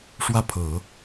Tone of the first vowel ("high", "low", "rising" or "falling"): falling